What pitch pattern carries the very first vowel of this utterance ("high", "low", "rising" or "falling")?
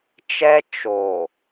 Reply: high